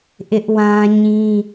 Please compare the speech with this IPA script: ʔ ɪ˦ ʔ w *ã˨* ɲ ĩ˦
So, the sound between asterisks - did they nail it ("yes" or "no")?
no